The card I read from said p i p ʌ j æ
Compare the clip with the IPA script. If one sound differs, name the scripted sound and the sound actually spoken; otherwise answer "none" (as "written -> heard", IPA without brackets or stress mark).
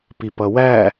j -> w